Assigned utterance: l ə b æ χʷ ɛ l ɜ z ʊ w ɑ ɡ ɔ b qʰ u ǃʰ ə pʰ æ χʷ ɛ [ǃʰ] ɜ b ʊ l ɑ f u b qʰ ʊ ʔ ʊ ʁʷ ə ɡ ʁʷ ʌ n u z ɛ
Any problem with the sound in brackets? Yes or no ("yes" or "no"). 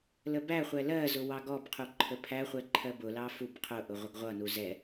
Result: no